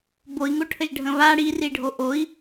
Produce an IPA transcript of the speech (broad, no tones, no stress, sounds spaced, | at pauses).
b o i̯ ŋ o ʈʰ ə ʒ ɖʱ ə̃ β a ɽ i r i ɖʱ o ʔ o i̯